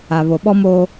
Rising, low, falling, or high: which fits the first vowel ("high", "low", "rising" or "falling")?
low